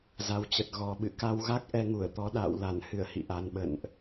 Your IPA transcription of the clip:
z a˨˩ w t͡ɕ ə˨˩ t̚ ɣ ɔ˨˩ ɓ ɨ̰˧˨ k a˧ w ɣ a˦˥ k̚ ʔ ɛ˧ ŋ u˧˩ ə̯ t̪ ɔ˨˦ ɗ a̰ː˧˨ w l a˧˩ n h ɨ˧˩ ə̯ h ḭ˧˨ ʔ a˨˩ n ɓ ə̰˧˨ n ʔ

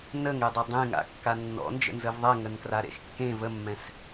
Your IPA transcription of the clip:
n ə ŋ e dˤ ɛ dˤ ẽ ŋ a̰ kː a nː ɔ̰ n d͡ʒ ə̰ n z ə v ðˤ ɛ ŋ ə n k r a ɾ ḛ x kː ẽ v ə mː ɛ̃ s

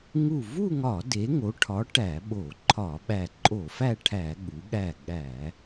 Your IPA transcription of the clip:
ŋ u˧˩ v u˥˧ ŋ ɒ˧˩˧ d e˩˧ ŋ o˩˧ ʈʰ ɒ˩˧ ʈ æ˧˩˧ ɓ o˧˩˧ ǃʰ ɒ˧˩˧ ɓ æ˧˩ ǃʼ o˧˩˧ f æ˥˧ ʈʰ æ˧˩˧ ɠ u˩˧ ɠ æ˧˩ ɠ æ˧˩˧

